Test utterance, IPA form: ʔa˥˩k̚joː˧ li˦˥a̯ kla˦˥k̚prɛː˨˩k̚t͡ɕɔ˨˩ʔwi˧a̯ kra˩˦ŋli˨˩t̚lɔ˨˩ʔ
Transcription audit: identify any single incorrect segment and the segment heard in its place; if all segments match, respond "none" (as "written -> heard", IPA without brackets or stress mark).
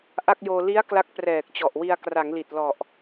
none